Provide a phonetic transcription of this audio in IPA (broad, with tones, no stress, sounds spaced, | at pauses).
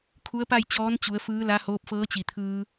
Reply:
kʰ u˧˥ ə̯ p a˥˨ j t͡ɕ ɔː˧˥ n t͡ɕ u˩˧ ə̯ f ɯː˧˥ l a˧˥ h oː˧˥ p̚ f ɤː˧˥ t͡ɕ i˩ t̪ʰ ɯː˧